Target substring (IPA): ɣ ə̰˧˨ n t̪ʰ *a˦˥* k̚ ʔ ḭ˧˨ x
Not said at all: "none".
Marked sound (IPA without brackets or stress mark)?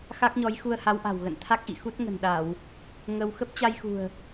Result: a˦˥